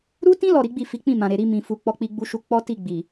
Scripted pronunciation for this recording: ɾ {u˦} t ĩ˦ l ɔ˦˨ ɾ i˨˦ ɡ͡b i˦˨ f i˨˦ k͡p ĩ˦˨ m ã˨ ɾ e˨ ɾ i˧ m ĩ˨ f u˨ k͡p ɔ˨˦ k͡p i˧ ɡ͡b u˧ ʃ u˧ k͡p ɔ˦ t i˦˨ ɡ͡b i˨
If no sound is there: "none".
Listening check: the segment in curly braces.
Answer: u˦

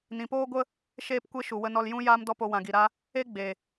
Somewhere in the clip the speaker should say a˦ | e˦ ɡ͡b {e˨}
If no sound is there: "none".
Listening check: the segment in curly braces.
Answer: e˨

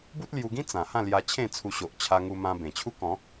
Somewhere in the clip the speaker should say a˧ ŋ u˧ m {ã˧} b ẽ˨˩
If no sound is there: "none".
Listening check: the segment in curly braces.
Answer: ã˧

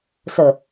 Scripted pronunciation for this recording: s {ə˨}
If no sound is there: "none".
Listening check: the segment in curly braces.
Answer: ə˨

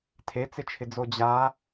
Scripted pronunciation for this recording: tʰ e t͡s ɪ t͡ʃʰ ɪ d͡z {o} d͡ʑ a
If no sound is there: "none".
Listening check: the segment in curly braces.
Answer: o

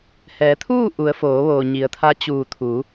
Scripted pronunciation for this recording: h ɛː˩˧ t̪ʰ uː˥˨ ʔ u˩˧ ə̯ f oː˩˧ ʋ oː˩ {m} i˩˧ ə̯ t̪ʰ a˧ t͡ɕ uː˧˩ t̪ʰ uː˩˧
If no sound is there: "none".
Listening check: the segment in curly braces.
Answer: ɲ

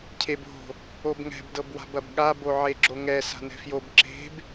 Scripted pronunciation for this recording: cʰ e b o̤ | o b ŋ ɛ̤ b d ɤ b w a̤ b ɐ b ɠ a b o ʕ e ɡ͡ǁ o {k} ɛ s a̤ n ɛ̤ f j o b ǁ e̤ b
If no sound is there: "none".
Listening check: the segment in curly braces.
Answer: ŋ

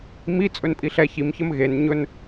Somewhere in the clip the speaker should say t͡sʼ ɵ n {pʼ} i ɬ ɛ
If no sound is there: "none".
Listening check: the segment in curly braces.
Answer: pʼ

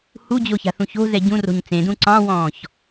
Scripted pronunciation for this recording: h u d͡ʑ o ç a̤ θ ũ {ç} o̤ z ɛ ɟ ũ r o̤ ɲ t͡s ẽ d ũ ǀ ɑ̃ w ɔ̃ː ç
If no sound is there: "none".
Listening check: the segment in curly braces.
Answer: ç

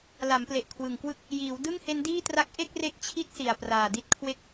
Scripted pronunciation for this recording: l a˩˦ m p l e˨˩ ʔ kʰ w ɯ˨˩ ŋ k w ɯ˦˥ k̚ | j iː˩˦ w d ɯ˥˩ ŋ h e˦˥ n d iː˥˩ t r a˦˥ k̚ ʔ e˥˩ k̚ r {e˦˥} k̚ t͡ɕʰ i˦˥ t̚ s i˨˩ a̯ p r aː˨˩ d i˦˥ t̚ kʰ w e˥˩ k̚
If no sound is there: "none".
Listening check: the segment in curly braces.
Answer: e˦˥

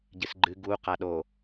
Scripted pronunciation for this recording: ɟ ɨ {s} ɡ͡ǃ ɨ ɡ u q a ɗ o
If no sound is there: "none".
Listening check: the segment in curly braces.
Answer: s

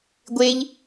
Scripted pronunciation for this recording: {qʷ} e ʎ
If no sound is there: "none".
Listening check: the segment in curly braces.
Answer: ɡʷ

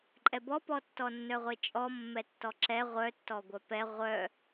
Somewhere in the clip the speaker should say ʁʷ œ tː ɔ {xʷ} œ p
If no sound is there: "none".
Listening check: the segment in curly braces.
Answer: ɡʷ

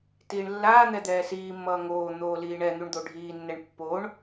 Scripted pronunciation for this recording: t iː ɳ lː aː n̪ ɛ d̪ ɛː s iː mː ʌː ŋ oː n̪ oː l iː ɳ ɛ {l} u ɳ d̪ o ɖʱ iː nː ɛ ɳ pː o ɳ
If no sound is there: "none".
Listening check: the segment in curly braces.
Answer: n̪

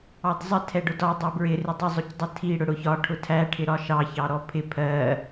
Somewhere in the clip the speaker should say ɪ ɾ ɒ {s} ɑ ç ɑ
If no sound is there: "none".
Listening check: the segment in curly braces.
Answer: ʃ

